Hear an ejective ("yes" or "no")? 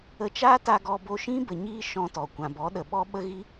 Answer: no